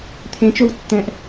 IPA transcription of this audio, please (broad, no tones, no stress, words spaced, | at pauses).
t̪ʰẽ t͡ʃowtːɛ̃ʔ